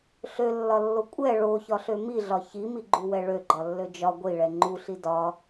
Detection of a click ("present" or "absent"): present